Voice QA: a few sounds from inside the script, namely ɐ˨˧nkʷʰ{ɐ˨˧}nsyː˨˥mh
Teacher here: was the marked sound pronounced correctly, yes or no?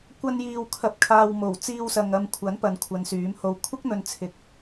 yes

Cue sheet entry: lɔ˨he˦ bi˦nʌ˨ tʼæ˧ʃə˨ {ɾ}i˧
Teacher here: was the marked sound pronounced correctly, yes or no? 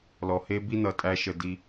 no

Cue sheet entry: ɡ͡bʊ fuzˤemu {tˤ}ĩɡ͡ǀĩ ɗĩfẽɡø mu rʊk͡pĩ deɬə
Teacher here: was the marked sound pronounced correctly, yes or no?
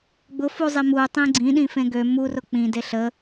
yes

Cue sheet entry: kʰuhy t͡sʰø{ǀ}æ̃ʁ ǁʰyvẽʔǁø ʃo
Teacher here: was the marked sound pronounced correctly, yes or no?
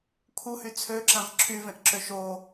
no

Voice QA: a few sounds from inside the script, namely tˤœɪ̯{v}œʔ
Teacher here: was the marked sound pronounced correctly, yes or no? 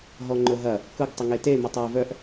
yes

